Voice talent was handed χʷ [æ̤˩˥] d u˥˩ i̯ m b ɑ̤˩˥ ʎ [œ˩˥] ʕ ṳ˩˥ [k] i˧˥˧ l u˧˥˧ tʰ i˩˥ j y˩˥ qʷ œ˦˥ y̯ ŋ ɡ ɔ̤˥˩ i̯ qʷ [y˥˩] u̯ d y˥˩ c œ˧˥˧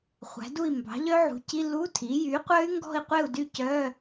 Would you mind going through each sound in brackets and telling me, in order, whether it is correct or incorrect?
correct, incorrect: œ˦˥, incorrect: c, incorrect: e˥˩

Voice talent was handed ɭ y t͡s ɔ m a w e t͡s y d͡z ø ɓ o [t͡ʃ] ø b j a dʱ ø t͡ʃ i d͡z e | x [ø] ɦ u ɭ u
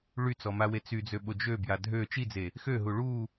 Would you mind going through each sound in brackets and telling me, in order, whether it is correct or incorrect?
incorrect: d͡ʒ, correct

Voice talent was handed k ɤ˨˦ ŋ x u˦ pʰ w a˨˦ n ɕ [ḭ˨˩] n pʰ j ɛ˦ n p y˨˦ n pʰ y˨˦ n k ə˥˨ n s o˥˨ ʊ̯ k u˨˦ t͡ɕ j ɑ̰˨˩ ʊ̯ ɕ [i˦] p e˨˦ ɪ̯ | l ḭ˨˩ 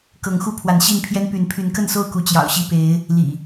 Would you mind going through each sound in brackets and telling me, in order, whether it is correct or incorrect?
incorrect: i˥˨, incorrect: i˥˨

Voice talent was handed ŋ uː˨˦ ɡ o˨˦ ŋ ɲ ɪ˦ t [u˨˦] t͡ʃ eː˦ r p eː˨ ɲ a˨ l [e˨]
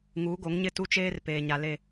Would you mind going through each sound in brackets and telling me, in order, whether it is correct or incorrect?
incorrect: u˦, correct

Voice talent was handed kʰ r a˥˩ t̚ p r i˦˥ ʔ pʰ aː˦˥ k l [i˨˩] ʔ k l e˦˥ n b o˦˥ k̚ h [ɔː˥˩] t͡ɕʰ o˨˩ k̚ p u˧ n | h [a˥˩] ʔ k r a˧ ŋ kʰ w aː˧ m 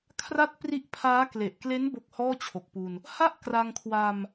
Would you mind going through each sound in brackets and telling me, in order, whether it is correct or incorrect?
incorrect: e˨˩, correct, correct

